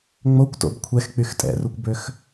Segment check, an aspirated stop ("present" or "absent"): present